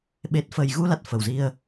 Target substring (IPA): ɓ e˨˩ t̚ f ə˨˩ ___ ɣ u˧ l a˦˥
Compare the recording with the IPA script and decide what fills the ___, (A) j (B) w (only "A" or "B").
A